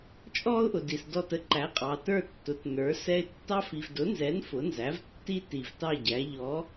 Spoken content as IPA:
t͡ʃʼ ɔ˥ ʊ̯ ʔ ʊ˨ d i˨ s d ɔ˥˧ t ə˥ ǃ æ˨˥ qʼ ɑ˨ t ə˞˥˧ tː ʊ˨˥ t n ə˞˨˥ s ɛ˥ ɪ̯ tː ɑ˥ f i˨ v d ʊ˨˥ n z ɛ˨˥ n f ʊ˨˥ n z æ˨˥ v tː i˥ t i˨ v t ɑ˥˧ ɟ æ˨˥ ʎ ɔ˨˥

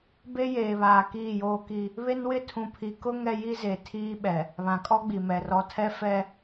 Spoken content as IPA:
b e˦ j eː˨ β aː˨ k iː˦˨ j oː˦ k i˦ | β e˦ n w ɪ˦ tʰ ũ˨ pʰ i˨ k ʊ˦ ŋ ɛ˦ j i˦ z e˨ tʰ iː˦ ɓ ɛ˨ | β ã˨ kʼ ɔ˦ ɡ͡b i˨ m ɛ˨ r ɔ˨˦ tʰ ɛ˦ f ɛ˦

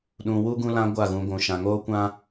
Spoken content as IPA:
ɗ ũ˨ w u˦ ɡ ũ˧ l ã˧ ɡʷ a˦˨ ɣ ũ˧ ɡʷ ũ˨ ʃ ã˨ ŋ oː˦ kʷ ã˦

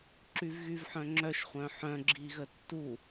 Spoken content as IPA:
ǁ y v ɣ y v ħ œ̃ ŋ͡ǁ œ ʃ χʷ œ̃ ħ œ̃ ɡ͡ǁ i ɣ ə tː u

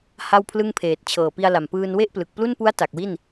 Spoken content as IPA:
h a˥˩ w pʰ l ɯ˥˩ ŋ pʰ eː˨˩ t̚ t͡ɕʰ ɤː˨˩ p i˧ a̯ l a˨˩ m p ɯː˧ n w e˥˩ ʔ p l ɯ˨˩ k̚ p l u˥˩ n p u˦˥ a̯ t a˨˩ k̚ w i˥˩ n

